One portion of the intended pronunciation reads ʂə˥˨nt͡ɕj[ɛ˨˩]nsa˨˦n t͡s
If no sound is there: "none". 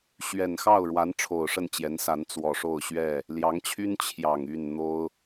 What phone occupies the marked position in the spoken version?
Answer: ɛ˨˦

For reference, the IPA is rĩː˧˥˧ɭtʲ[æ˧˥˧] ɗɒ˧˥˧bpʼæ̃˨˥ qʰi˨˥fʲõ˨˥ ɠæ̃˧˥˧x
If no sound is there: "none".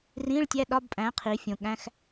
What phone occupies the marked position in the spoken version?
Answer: æ˧˥˧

